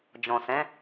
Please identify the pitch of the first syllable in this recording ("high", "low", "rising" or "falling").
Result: low